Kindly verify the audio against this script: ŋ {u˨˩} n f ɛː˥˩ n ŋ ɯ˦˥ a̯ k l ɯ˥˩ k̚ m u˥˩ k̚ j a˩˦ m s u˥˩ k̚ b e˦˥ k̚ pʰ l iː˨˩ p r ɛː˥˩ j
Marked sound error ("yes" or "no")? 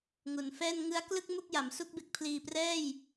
no